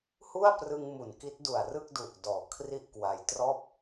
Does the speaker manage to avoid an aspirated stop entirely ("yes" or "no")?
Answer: no